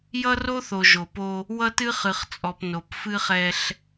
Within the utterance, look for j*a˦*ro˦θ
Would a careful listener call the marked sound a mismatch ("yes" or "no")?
yes